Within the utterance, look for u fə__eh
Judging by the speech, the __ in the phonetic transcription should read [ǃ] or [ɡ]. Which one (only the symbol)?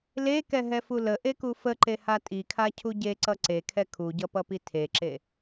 ǃ